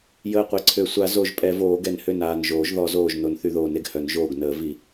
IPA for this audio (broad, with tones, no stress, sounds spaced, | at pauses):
j əː˧˩ qʷ e˨˩˦ ǀʰ ø˨˩˦ sʷ a˨˩˦ z o˨˩˦ ʒ pʼ ɛ˨˩˦ v oː˨˩˦ ɡ ɛ˨˩˦ n h ø˧˩ n aː˧˩ n ʒ oː˨˩˦ ʒ ð ɔ˨˩˦ z oː˧˩ ʒ n o˨˩˦ n θ y˨˩˦ ð oː˨˩˦ n e˧˩ ɡ h œ˨˩˦ n ʒ oː˧˩ ɡ n əː˨˩˦ v i˨˩˦